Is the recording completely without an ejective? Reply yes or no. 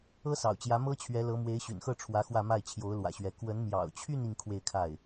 yes